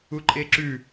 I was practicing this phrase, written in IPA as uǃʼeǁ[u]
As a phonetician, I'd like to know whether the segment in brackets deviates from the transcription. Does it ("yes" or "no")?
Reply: yes